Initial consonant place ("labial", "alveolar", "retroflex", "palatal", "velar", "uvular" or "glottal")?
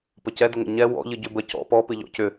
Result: labial